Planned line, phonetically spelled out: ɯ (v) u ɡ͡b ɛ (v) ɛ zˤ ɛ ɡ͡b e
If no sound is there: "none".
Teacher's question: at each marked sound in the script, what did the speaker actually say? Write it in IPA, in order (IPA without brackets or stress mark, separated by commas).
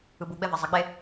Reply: b, v